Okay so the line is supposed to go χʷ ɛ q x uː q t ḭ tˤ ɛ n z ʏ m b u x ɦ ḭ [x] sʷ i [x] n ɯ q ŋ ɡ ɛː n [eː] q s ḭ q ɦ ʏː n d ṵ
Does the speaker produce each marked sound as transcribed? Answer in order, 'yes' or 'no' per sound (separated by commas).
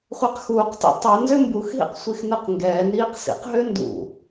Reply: no, yes, no